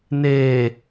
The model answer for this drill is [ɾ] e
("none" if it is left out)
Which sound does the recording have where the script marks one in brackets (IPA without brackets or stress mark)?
n